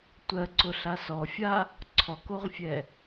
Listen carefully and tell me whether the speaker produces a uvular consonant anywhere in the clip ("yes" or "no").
yes